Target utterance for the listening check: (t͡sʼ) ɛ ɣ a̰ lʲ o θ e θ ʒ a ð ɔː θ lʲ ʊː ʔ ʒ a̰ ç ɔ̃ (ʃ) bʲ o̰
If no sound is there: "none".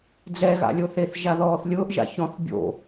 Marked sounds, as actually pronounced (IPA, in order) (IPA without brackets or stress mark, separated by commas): d͡z, θ